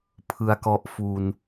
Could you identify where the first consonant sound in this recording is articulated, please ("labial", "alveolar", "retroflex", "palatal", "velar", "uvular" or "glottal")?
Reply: labial